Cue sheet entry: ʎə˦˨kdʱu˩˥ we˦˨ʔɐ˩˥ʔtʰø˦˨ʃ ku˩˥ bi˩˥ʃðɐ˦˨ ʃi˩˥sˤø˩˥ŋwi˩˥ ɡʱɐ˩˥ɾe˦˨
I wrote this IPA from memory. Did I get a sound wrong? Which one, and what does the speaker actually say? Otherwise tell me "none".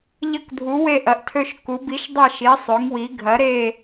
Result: ð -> dˤ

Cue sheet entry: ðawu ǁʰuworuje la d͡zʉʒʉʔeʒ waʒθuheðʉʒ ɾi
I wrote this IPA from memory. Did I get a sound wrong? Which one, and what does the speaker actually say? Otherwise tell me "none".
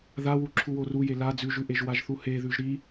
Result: none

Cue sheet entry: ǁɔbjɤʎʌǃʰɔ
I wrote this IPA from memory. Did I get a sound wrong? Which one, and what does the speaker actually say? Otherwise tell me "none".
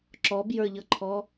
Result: ɤ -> ə˞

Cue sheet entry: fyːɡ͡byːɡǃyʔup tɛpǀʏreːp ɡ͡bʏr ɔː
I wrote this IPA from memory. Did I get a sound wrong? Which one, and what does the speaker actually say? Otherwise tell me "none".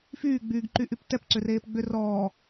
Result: u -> y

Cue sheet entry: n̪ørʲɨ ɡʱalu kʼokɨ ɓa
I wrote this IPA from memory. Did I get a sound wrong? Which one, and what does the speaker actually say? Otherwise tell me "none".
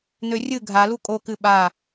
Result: none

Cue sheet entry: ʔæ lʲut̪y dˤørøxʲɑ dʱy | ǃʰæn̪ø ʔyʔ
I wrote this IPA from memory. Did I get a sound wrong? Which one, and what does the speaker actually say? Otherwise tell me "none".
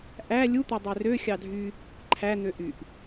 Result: none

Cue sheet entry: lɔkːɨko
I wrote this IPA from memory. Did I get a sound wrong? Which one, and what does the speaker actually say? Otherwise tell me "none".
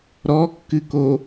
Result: l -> ɾ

